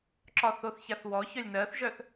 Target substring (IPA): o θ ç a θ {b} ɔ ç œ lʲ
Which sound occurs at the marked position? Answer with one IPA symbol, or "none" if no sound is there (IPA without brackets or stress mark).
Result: w